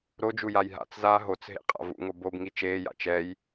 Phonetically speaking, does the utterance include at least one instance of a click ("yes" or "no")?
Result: no